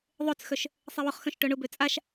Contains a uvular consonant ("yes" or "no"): yes